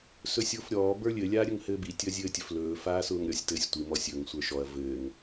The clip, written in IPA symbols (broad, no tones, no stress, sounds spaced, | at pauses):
s ɵ sʲ ʊː f ɾʲ ɔː b ə˞ lʲ ɘ lʲ aː ɾʲ ɵ ŋ h ɘː b i tʲ ɵ ɐ̯ zʲ ɘː tʲ ɵ f l ɵː f aː s ʊː ŋ ɾʲ ɔ sʲ t ɘː sʲ tʷ i m ɔ sʲ ɵ ŋ sʷ ə˞ ʃ ɔ ɐ̯ v ɘː ŋ